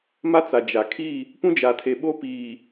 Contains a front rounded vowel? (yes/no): no